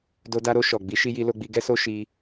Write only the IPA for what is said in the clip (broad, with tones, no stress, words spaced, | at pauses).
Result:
do˧da˧ɾo˧ ʃɔ˨ ɡ͡bi˨˦ ʃi˧ji˧lo˧ɡ͡bi˧ ɡɛ˦so˦ ʃi˧